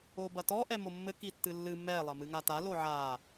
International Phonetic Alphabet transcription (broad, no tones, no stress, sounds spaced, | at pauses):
o b ɐ t ɔ ʔ ɛ m o mː ɘ k i tː ɨ lː ɨ m ɛ lˠ ɐ m ɨ ŋ a t a l o ʕ a